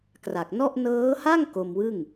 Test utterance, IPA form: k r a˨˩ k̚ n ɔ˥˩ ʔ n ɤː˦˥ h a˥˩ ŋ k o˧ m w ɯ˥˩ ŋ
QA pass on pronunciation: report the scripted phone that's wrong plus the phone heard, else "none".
none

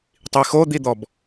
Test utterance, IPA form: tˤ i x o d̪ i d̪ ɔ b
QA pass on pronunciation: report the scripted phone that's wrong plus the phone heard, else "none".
none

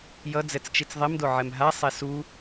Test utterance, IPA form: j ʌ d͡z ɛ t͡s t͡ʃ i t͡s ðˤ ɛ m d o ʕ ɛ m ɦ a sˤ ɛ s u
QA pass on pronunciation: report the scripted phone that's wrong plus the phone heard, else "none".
none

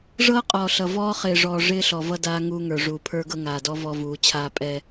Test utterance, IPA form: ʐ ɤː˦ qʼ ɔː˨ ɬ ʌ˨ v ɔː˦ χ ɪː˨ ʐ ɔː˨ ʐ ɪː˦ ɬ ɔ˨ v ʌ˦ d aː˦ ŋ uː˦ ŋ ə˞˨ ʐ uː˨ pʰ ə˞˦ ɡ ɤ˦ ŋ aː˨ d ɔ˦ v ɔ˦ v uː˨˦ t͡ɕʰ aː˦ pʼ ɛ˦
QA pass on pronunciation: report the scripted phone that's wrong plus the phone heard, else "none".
none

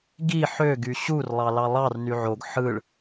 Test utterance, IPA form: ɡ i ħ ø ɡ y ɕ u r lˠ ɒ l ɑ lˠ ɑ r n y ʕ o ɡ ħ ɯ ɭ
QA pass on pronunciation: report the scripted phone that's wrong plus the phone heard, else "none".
ɒ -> ɑ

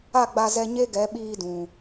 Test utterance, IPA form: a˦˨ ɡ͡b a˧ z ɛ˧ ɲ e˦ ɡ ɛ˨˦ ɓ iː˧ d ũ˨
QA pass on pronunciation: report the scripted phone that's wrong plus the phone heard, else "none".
none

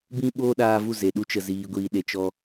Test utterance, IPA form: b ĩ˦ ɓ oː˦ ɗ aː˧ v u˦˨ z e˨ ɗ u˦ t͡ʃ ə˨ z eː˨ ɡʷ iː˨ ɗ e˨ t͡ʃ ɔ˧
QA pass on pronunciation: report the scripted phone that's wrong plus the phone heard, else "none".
eː˨ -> iː˨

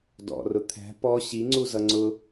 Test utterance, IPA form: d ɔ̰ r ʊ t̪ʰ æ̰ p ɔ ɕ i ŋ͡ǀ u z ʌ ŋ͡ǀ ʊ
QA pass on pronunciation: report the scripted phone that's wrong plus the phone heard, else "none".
æ̰ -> æ̤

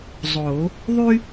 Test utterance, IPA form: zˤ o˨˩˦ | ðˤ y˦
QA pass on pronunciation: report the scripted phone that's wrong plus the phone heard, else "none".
none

